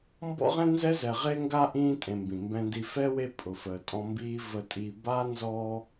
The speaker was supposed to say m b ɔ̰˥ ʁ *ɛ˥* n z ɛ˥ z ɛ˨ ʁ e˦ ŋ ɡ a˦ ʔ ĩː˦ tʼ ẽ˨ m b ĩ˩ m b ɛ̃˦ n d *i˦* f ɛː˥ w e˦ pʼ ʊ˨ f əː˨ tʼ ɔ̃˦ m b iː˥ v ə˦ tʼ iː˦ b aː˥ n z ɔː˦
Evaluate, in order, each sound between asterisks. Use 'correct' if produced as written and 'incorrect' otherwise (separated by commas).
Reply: incorrect, correct